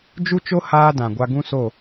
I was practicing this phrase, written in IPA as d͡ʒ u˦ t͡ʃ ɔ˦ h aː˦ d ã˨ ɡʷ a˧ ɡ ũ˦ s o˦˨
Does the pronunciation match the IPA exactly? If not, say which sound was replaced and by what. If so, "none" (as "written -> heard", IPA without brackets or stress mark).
ɔ˦ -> o˦